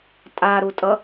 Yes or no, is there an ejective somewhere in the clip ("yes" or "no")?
yes